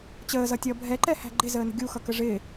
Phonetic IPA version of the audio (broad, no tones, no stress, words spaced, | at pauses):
t͡ɕəːzʌtʲʌː bʱɛǃɛhæ̤ ɡ͡ǃɪzəːnə̤ ɡʲuxʌkə ʐɪː